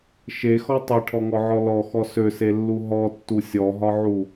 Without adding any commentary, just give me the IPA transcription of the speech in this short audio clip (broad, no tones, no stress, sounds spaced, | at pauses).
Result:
ʃ e x ɔ tˤ e ʈʰ ɔ ŋ ɔ ʕ ɔ l ɔ x ɔ s ø s e lː u ɦ ɔ tː u sʲ ɔ ɦ ɒ ʕ u